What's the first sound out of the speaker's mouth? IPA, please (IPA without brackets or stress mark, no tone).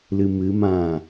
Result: l